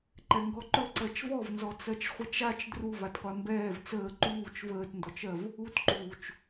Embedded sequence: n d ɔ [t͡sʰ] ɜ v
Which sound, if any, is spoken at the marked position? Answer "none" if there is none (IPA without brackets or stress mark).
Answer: t͡ʃ